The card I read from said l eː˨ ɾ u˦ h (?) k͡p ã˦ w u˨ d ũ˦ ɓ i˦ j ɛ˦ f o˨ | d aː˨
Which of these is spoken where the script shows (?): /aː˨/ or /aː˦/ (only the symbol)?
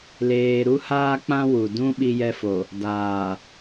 aː˦